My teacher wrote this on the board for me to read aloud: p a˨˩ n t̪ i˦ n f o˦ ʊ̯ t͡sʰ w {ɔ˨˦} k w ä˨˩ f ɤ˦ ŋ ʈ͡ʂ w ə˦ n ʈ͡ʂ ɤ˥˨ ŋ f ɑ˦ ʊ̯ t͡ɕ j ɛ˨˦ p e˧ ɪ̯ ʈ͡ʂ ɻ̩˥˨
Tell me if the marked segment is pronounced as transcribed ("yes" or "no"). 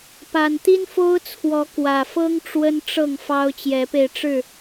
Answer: yes